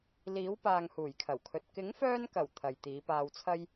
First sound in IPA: l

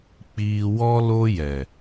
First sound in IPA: k͡p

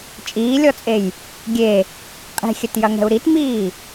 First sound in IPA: t͡ʃʼ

